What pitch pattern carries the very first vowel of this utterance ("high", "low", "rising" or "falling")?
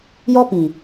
high